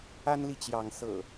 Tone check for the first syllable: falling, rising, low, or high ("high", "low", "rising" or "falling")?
high